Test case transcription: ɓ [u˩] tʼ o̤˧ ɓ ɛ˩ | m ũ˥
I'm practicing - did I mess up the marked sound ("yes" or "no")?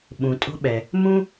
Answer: yes